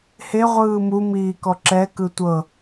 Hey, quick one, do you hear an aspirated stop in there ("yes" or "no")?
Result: no